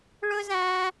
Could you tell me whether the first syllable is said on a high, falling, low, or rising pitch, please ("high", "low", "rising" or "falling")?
high